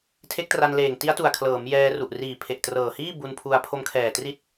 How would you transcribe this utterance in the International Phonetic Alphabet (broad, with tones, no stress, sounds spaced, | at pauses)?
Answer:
tʰ e˦˥ k̚ t r a˧ n l eː˨˩ ŋ t i˦˥ a̯ t u˨˩ a̯ kʰ l ɤː˩˦ m j ɛː˧ r u˨˩ ʔ r iː˨˩ pʰ e˨˩ ʔ t r ɤː˨˩ h iː˥˩ b u˧ n pʰ u˧ a̯ pʰ o˧ m kʰ ɛː˨˩ t r i˦˥ t̚